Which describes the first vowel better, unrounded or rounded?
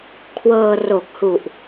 unrounded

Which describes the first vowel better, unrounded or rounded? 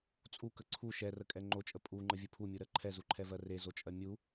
rounded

